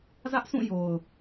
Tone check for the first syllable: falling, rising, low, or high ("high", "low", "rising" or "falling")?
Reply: high